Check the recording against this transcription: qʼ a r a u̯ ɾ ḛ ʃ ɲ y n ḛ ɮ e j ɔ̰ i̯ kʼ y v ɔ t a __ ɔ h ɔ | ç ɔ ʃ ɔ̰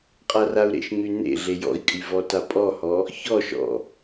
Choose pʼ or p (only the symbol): pʼ